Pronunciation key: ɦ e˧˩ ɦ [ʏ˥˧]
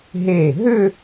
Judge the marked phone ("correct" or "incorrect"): correct